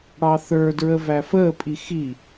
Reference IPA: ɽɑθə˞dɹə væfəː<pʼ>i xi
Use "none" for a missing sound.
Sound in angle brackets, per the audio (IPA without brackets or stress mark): pʼ